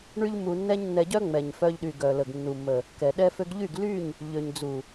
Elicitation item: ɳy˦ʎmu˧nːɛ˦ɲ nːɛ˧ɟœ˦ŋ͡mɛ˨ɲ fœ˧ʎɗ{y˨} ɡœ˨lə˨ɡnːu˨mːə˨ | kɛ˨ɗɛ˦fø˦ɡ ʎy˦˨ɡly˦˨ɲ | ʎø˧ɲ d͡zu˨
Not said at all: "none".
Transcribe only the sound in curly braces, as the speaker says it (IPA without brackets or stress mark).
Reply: y˨